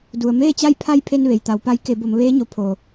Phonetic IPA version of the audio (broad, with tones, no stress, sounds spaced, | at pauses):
d u˩ ə̯ m eː˥˨ t͡ɕ a˥˨ j pʰ a˥˨ j pʰ e˧ n ʋ e˩ j t̪ a˩˧ w p a˧˥ j k e˩˧ b o˩˧ m ʋ eː˧˥ ɲ o˩˧ pʰ o˩